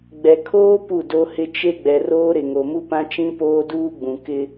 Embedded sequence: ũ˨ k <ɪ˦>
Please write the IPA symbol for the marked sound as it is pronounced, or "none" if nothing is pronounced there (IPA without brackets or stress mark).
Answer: ɪ˦